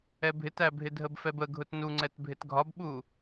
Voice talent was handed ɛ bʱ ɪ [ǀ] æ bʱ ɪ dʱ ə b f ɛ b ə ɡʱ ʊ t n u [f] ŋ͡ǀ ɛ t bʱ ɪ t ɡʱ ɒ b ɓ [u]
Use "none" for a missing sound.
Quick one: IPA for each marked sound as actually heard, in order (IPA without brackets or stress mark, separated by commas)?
t, none, u